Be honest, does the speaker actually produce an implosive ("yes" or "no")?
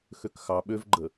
yes